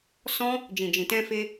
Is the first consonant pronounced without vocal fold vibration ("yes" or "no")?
yes